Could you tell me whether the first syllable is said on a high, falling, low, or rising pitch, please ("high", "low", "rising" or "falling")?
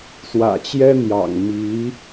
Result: low